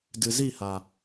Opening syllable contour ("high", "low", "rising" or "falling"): low